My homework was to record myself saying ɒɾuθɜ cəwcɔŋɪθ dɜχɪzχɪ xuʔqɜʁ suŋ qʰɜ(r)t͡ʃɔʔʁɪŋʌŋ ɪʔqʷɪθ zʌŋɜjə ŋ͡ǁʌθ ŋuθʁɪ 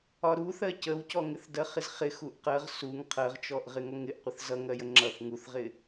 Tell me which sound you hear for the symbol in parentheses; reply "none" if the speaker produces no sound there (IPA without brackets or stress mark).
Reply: ʁ